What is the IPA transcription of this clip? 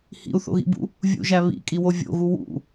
h ḭ u̯ θ o̰ ɣ ḭ b ṵ | vʲ ṵ ʒ æ β ḭ kʼ i w o vʲ o̰ ɣ u w ṵ

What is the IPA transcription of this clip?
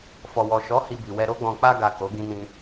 f ɔ˨ w ɔ˨ ʃ ɔ˨˦ h i˧ b i˨ w ɛ˧ ɾ o˧ ɡ͡b ɔ̃˨ k͡p a˧ ɡ a˨ k o˨˦ ɡ ĩ˧ n ĩ˧

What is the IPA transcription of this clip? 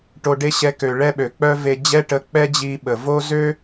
ʈ o˧ ɖ e˦ ɕ ɛ˧ k ø˨ ɭ ɛ˦ ɓ ø˨ k͡p œ˦ v e˧ d͡ʑ ɛ˦ ʈ ə˧ k͡p ɛ˦ d͡ʑ i˦ ɓ ə˨ v o˦ z ø˦

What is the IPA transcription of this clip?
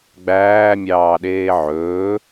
ɡ͡b æː mʲ ɑː ɗ eː ʕ ɵː

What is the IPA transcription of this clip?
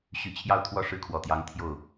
ɕ y˧˥ t͡ɕʰ j ɑ˥˧ ʊ̯ t̪ʰ w ɔ˥˩ ʂ ɻ̩˥ kʰ w ɔ˨˩ t̪ j ɑ˧˥ ŋ t̪ʰ j o˥˩ ʊ̯

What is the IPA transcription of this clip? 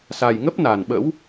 s a˨˩ j ŋ ə˦˥ p̚ n a˨˩ n ɓ ə̰˧˥ w

